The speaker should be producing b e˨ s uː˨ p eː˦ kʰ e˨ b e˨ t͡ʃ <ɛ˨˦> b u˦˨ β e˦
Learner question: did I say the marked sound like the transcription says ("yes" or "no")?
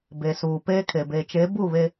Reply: no